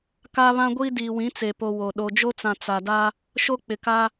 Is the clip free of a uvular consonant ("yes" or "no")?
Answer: yes